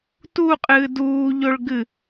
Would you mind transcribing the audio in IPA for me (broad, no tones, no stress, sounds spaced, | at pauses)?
t u qʼ ɨː d uː ʎ o ɭ ɡ ɨ